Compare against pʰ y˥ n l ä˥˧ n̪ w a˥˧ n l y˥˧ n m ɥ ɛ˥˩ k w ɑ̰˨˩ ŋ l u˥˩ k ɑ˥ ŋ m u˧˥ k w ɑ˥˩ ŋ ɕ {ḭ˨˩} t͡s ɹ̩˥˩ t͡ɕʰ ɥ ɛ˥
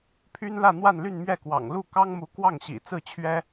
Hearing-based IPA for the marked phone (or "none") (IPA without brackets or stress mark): ḭ˨˩